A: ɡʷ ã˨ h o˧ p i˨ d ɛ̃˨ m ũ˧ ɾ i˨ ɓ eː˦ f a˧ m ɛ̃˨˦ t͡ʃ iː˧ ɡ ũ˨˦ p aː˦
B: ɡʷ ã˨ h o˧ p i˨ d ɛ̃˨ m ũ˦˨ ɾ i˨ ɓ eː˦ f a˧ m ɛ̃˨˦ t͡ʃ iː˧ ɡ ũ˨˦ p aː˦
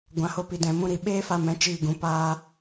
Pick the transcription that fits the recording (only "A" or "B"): A